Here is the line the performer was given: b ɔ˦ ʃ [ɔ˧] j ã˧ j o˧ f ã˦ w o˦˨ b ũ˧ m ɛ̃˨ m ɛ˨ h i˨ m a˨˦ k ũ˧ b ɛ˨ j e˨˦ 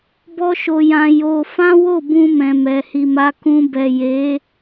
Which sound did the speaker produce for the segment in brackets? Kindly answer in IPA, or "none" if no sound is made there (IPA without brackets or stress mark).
o˧